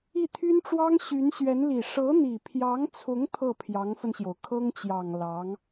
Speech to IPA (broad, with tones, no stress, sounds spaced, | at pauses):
i˥˩ t̪ʰ y˥ n ʈ͡ʂ w ɑ˥ ŋ ɕ y˧˥ n ɕ ɥ ɛ˧˥ n l i˨˩ ʂ ɤ˧˥ n̪ i˨˩ pʰ j ɑ˧˥ ŋ t͡sʰ ʊ˧˥ ŋ t̪ʰ ɤ˥˩ pʰ j ɑ˧˥ ŋ f ə˧ n ɕ j o˩ ʊ̯ kʰ ɤ˥ ŋ t͡ɕ j ɑ˨˩ ŋ l ɑ˧˥ ŋ